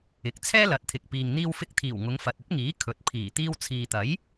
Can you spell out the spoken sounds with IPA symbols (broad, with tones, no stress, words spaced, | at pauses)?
ɪ˨k̚ t͡sʰɛː˥lɐ˨˥t̚t̪ʰɪ˨k̚ piː˨ŋn̪iː˧wfɪ˧k̚t̪ʰiː˨˩w ŋʊ˨˧ŋfɐ˨t̚ɵ˥t̚ŋiː˨˥ kʰɵ˨t̚ pʰiː˨˩ t̪iː˧wt͡sʰiː˨t̪ɐ˨˥j